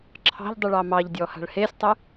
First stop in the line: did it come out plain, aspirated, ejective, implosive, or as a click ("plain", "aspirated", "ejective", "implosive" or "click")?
click